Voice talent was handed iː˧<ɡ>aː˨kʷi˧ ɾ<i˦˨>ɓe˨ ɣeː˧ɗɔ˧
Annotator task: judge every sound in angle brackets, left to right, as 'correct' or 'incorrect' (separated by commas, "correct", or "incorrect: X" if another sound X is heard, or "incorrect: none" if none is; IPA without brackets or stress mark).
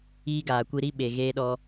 correct, correct